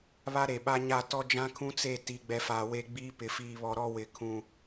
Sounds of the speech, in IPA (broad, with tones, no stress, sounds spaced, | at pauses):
β a˦ ɾ e˨ ɓ a˦ ɲ a˦˨ t ɔ˦ d͡ʒ ã˦ kʰ ũ˦ t͡s e˦˨ t i˨˦ ɡ͡b ɛ˨ f aː˨ w e˦˨ ɡ͡b iː˦ p ɪ˨ f iː˨ β ɔ˨ ɾ ɔ˦ w ɪ˨ kʰ ũ˦